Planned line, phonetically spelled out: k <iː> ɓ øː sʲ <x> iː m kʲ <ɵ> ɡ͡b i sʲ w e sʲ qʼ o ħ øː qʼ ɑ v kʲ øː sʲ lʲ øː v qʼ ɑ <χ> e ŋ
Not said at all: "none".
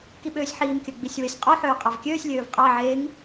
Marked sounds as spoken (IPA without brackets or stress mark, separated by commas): i, ħ, œ, ʕ